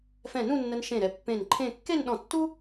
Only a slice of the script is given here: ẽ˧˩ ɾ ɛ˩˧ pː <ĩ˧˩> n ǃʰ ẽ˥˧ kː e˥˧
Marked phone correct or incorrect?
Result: incorrect